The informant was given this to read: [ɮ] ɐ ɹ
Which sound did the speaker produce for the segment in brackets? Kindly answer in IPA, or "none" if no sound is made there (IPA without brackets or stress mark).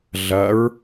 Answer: ɮ